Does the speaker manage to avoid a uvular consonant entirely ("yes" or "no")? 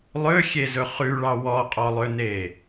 no